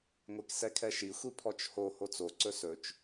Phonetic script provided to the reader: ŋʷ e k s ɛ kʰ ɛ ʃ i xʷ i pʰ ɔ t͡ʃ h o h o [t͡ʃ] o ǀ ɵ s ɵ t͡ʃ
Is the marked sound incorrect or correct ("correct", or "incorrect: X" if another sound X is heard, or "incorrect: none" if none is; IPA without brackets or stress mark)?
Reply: incorrect: t͡s